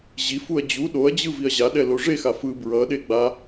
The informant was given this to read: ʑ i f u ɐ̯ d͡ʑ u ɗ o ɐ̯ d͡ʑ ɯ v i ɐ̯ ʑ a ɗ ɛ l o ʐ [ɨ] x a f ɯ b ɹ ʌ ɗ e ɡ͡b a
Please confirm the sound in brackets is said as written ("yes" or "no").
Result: no